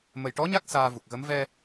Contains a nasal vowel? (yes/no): no